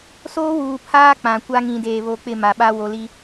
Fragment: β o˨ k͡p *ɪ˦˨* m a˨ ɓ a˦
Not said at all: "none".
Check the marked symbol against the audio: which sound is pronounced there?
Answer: ɪ˦˨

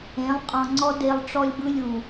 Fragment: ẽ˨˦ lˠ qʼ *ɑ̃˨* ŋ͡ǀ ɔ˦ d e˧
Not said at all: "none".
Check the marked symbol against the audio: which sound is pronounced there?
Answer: ɔ̃˨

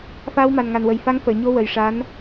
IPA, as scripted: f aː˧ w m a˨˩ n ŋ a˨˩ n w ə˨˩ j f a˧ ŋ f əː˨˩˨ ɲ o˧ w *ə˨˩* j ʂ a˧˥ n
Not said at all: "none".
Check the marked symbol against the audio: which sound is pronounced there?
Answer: ə˨˩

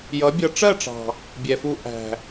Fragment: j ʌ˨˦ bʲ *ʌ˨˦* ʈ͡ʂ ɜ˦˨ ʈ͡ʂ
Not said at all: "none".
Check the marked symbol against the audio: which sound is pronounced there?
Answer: ʌ˧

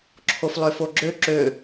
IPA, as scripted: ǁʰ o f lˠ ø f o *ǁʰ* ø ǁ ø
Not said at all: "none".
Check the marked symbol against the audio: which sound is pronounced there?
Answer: ɡ͡ǁ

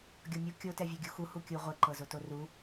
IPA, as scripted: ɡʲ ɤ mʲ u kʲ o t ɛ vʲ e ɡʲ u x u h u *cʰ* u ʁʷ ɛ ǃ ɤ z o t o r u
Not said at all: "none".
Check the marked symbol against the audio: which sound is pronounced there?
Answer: kʲ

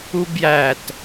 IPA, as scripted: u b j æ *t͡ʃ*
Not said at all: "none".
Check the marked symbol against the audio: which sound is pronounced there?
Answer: t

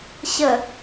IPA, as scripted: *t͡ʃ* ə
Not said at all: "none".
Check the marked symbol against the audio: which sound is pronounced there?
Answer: ɕ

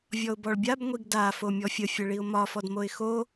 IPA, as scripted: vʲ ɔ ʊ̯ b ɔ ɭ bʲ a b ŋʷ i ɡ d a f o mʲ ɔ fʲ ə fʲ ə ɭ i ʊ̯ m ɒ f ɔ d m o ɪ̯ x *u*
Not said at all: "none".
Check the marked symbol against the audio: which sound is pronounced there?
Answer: o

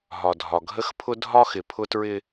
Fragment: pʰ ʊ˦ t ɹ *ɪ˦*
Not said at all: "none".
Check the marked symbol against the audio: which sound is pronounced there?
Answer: ɪ˦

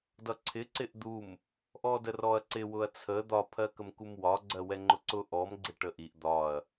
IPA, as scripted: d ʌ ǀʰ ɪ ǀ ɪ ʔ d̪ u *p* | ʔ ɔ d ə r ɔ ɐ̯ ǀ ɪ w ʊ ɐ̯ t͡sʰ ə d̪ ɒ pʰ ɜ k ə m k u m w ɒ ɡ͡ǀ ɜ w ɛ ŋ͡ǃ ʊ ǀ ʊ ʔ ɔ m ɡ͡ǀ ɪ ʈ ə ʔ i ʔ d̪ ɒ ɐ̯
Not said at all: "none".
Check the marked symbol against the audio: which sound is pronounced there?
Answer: m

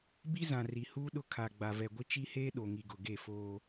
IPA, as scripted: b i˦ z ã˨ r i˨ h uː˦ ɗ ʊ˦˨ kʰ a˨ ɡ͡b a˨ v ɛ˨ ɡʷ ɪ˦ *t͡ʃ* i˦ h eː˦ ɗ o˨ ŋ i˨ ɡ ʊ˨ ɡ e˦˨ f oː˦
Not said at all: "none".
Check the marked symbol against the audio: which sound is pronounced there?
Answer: t͡ʃ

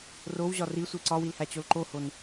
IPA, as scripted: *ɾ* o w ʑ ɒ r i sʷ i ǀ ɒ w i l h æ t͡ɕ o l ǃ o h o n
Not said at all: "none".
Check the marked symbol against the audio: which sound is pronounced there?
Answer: r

